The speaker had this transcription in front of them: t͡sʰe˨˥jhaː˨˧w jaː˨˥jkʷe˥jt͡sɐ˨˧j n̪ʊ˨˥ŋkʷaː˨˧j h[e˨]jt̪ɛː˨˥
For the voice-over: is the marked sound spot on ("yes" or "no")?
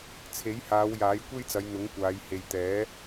yes